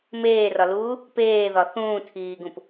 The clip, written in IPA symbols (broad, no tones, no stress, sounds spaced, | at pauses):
m eː r ɒ l uː | p eː ð ɒ θ ũː tʰ iː ɡ ũ p